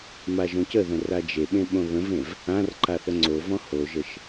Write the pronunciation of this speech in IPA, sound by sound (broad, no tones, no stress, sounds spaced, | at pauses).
m a ʒ õ c ə ð ə̃ r a d͡ʒ e ɓ ẽ ɓ õ β ə̃ v ẽ v | ã r ǃ a θ ə ŋ͡ǀ o v ɔ̃ h o ʒ ə ʃ